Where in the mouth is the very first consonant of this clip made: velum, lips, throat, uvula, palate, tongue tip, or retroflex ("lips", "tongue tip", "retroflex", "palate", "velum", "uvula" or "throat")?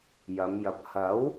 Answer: palate